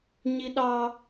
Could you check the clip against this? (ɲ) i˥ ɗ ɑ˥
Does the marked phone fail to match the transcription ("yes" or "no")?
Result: no